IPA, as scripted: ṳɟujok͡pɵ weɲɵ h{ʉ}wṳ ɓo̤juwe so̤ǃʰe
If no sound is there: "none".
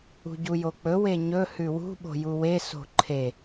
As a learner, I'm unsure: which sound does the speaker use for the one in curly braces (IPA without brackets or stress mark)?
ʉ